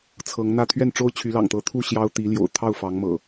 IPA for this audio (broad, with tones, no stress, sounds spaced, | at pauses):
t͡sʰ ɤ˨˦ ŋ n̪ ä˥˨ t̪ʰ ɥ ɛ˥˨ n ʈ͡ʂ o˦ ʊ̯ t͡ɕʰ y˨˦ l ɑ̰˨˩ ŋ t̪ ɤ˨˦ t̪ʰ u˥˨ ɕ j ɑ˦ ʊ̯ t̪ i˨˦ l j o̰˨˩ ʊ̯ t̪ʰ ɑ˥˨ ʊ̯ f ɑ˨˦ ŋ m ɤ̰˨˩